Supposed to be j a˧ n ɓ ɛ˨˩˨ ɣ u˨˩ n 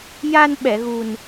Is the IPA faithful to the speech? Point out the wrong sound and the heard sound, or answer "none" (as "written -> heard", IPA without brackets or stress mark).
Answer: none